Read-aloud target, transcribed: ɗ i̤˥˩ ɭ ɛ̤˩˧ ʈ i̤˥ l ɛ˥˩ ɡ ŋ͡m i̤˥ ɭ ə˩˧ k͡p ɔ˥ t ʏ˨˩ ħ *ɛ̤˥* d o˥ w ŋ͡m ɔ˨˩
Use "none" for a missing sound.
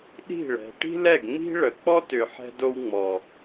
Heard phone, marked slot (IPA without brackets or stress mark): ɛ̤˥